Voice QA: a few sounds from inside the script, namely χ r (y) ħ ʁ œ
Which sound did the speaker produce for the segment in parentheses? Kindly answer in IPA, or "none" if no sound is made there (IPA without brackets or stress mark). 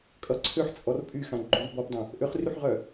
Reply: y